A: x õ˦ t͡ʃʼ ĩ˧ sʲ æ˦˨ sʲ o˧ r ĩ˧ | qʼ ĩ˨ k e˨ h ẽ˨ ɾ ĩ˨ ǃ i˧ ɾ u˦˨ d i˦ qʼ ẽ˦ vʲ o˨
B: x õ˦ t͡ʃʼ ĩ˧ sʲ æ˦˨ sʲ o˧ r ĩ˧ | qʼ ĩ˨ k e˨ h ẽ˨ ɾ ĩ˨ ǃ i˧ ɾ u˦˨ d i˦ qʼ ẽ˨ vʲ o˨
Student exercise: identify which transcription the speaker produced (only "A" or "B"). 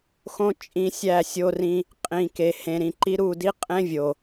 A